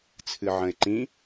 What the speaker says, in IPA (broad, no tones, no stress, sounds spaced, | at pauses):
t͡sʰ ɨ ʕ ə̃ ɪ̯ ǃ ĩ